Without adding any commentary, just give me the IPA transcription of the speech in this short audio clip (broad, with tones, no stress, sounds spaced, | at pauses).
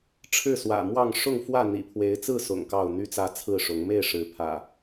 ʈ͡ʂʰ ɻ̩˥˨ s w ä̰˨˩ m w ɑ˥˨ ŋ ʂ ʊ˥˨ ŋ f w ä˥˨ n̪ ḭ˨˩ pʰ w e˨˦ ɪ̯ t͡s ɹ̩˥˨ s ʊ̰˨˩ ŋ k ɑ˥˨ ʊ̯ n̪ y˦ t͡s ä˦ t͡sʰ ɹ̩˥˨ ʂ ʊ˨˦ ŋ m e˥˨ ɪ̯ ʂ ɻ̩˨˦ pʰ ä̰˨˩